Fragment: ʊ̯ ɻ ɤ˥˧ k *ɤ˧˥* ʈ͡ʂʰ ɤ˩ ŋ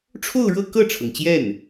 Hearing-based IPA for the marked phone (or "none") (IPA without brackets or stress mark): ɤ˥˩